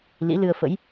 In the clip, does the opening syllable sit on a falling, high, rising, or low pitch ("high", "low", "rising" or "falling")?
rising